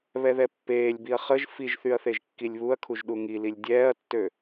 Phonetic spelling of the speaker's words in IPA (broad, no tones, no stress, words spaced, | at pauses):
βɛðɛpːeːlʲbiɐ̯ χəʒ fiʒθyɐ̯ θeʒkːilʲβuɐ̯kʰuʒ ɗuŋililʲ dʲɛːɐ̯tːø